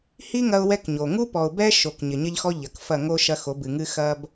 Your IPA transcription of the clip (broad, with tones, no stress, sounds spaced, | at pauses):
h i˦ ŋ ɐ˦ ʊ̯ w ɛ˦ k ɲ o˨ ŋ u˦ p ɔ˨ ʊ̯ b ɛ˦ ʃ o˨ k ɲ ɘ˨ ɲ ɐ˦ ʎ x ɔ˦ ʎ ɐ˨ k f ɐ˦˨ ŋ o˦ ʃ ɐ˦ x o˨˦ b ɨ˨ ŋ ɨ˦ x ɐ˦ b